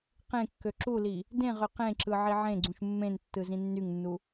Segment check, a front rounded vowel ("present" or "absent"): present